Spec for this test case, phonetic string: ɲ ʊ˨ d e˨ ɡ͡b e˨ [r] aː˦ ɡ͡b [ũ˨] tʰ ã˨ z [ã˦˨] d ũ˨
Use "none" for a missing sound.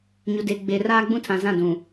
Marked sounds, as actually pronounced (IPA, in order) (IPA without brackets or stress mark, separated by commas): r, ũ˦, ã˦˨